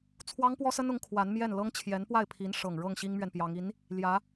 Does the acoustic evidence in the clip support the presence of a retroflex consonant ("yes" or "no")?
yes